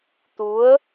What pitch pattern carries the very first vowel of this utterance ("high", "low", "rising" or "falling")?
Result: rising